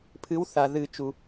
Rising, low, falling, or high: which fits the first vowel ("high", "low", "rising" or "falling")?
rising